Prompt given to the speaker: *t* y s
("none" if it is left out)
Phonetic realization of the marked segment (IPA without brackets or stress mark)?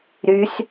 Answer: ɾ